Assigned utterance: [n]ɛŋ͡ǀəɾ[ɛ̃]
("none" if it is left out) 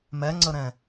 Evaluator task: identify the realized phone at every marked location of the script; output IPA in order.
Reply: m, ɛ̃

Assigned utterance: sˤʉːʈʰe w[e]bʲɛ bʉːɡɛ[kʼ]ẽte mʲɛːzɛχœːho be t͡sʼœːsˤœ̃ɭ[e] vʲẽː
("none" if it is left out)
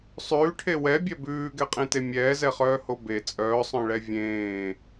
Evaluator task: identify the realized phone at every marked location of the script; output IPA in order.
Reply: ɛ, qʼ, ɛ

